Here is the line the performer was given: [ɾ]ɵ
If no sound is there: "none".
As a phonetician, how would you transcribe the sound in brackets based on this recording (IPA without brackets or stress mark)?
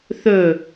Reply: θ